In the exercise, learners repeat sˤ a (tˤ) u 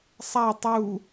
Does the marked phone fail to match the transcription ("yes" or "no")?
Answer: no